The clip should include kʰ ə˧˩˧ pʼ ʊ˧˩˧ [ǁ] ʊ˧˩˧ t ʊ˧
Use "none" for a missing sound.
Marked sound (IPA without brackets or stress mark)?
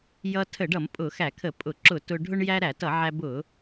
ǁ